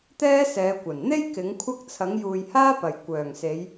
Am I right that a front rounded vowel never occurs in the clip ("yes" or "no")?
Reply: no